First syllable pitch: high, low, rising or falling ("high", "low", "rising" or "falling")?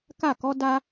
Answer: falling